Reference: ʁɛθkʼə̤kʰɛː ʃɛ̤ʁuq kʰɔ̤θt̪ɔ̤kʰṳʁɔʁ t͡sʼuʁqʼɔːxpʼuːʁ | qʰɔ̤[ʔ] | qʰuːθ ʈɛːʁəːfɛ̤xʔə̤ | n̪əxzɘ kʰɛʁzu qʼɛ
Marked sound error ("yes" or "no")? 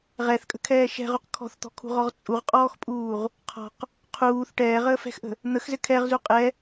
yes